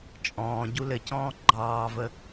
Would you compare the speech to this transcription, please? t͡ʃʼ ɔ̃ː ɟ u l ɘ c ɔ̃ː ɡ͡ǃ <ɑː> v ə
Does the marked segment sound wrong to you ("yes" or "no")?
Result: no